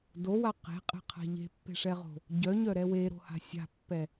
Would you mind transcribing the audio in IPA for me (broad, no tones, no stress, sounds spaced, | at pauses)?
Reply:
d o w a q e̤ qʼ ɛ̤ qʰ a̤ ʎ e̤ pː e̤ ʂ ɛ ʁ o̤ | ɟ œ ɲ œ ɾ ɛ w e ɾ o̤ h a̤ sʲ a̤ pː ɛ